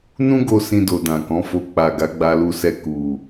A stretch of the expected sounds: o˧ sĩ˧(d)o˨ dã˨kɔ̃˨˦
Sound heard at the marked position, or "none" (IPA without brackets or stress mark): d